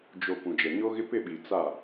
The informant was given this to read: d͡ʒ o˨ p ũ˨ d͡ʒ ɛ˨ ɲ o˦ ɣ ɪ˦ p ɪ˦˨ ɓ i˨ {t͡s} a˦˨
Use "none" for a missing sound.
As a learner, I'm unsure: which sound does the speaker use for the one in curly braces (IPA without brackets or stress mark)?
t͡s